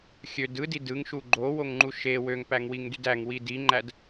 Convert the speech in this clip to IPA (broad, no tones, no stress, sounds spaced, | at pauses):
xʲ ø d ɯ d i d ɯ ŋ ʃ u ɡ͡ǃ o w o ŋ ŋ͡ǃ u ʃ e w ø ŋ p æ ŋ w i ŋ d y d æ ŋ w i d i ŋ͡ǃ æ d